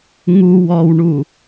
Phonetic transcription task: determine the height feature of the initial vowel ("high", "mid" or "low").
high